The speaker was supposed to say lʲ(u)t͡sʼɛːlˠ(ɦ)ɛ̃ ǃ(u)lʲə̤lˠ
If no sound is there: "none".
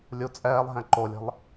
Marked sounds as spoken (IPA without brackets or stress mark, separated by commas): u, ɦ, o